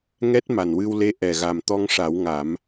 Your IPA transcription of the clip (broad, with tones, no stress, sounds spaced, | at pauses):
ŋ ɛ˦˥ t̚ m a˨˩ n w ɨ˧ w l e˧˥ ʔ ɛ˨˩ ɣ a˨˩ m t̪ ɔ˧ ŋ ʂ a˨˩˦ w ŋ a˨˩˦ m